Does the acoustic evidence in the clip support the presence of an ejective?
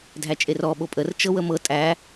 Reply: yes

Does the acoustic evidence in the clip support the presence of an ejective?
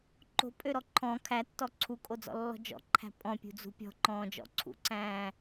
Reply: yes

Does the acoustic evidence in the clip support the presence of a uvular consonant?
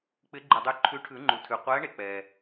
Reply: yes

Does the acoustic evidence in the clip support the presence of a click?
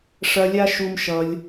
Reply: no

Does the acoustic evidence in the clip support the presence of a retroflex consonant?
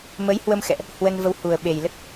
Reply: no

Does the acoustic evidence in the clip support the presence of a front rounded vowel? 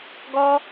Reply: no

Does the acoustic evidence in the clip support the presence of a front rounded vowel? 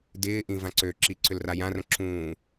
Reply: yes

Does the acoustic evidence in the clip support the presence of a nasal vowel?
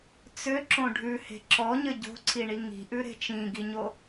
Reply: yes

